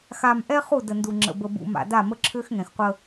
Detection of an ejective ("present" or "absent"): absent